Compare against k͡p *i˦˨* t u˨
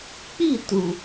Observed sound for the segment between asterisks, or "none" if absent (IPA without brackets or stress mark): i˦˨